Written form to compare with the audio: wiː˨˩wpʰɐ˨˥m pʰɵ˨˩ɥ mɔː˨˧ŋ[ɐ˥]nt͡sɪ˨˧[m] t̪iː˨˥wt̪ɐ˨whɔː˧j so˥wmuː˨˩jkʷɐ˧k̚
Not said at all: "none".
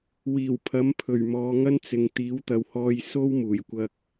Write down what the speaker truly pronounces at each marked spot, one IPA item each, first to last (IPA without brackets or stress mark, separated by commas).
ɐ˥, ŋ